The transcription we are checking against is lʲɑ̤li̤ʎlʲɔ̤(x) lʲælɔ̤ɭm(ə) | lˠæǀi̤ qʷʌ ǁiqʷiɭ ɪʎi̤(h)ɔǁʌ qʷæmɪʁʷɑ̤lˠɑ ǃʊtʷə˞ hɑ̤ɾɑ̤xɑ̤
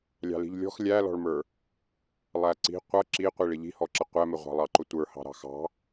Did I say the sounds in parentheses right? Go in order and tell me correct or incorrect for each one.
correct, incorrect: ə˞, correct

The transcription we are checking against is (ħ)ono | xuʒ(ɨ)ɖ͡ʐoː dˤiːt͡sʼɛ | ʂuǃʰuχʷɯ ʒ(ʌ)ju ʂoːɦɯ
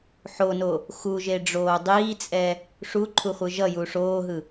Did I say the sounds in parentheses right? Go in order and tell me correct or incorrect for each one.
correct, incorrect: e, correct

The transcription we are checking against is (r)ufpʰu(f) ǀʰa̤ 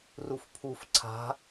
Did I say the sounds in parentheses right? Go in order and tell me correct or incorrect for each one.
correct, correct

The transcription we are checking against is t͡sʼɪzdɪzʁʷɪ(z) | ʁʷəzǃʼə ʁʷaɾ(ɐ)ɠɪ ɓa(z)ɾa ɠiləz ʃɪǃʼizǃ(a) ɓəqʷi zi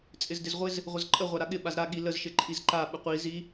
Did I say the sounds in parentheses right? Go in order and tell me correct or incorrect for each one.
correct, incorrect: a, correct, correct

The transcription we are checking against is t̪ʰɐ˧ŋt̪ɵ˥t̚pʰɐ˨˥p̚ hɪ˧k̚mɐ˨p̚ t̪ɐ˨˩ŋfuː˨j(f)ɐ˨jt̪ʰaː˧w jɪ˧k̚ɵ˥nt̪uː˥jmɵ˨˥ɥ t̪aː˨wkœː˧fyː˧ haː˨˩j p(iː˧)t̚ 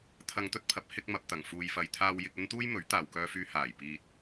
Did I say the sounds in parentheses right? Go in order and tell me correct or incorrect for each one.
correct, correct

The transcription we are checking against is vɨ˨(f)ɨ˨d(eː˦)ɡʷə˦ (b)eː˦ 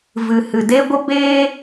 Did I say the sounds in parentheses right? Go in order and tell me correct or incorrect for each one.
incorrect: h, incorrect: e˦, correct

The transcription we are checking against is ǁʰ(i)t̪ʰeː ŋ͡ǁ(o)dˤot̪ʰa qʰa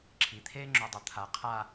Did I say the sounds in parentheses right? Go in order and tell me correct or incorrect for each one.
correct, correct

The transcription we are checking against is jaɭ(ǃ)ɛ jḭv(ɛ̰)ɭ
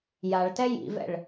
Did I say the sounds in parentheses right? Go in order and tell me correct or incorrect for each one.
incorrect: t, correct

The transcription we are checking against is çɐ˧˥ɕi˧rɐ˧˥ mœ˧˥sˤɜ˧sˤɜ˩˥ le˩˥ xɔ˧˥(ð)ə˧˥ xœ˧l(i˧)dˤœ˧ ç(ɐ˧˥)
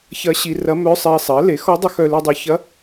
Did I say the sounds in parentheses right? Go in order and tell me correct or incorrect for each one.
incorrect: dˤ, correct, correct

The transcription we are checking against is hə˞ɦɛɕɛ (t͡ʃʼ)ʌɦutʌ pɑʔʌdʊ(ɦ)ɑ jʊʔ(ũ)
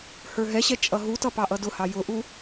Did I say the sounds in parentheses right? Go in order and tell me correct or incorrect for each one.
correct, incorrect: h, incorrect: u

